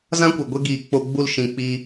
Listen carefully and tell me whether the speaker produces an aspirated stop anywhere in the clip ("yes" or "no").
no